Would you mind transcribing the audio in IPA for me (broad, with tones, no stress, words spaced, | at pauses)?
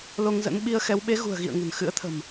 lo˧ŋzə̰˧˥nɓi˧ə̯xɛ˨˦w ɓe˨˦ɣṳ˨˩ə̯ɣḭ˧˨ə̯ ŋə̤˨˩nxɨ̰˧˥ə̯t̪ʰə̤˨˩m